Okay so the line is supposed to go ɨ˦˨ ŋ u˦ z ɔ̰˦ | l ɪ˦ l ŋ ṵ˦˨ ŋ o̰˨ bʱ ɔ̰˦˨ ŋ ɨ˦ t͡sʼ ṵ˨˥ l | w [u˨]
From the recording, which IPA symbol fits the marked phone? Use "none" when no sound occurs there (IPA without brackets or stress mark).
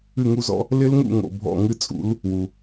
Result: u˨